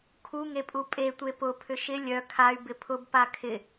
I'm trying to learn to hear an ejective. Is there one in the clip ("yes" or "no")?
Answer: yes